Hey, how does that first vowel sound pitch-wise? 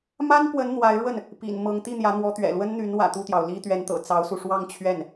high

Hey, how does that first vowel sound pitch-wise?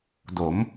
rising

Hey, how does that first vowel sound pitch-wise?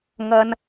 high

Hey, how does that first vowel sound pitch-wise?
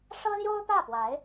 high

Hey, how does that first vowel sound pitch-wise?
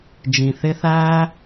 low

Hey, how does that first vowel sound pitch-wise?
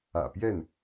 low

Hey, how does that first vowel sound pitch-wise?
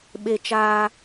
low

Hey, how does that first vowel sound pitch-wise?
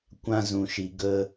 high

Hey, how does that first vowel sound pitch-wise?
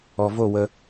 low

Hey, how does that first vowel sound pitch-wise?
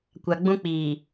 high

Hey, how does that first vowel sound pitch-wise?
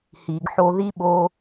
low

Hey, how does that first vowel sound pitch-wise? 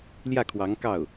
falling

